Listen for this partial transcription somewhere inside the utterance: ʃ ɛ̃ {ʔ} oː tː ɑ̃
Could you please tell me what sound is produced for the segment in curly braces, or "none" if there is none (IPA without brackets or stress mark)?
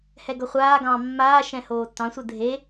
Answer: h